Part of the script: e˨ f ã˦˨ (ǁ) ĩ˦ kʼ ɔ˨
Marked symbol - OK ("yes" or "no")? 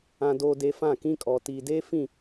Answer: no